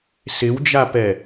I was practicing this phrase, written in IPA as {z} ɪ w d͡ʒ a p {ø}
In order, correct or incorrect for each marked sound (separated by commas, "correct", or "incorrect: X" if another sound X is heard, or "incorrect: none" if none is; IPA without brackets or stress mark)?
incorrect: s, incorrect: ɛ